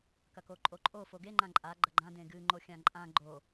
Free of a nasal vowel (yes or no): no